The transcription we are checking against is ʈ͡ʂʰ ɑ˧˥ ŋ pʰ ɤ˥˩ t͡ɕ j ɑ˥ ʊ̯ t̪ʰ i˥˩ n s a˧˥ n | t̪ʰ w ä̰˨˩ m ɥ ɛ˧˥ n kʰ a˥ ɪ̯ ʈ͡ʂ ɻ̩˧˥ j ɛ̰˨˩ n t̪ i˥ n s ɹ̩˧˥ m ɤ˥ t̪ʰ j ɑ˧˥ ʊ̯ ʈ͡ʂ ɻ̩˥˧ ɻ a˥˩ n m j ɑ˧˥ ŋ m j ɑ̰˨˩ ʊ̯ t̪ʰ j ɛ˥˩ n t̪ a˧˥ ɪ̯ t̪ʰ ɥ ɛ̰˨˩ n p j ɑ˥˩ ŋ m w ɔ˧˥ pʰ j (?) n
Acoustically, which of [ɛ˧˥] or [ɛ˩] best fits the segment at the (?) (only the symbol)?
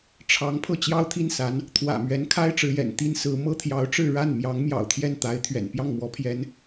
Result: ɛ˧˥